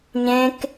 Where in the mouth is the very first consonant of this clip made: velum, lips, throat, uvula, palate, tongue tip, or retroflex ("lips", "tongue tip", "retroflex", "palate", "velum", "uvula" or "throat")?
palate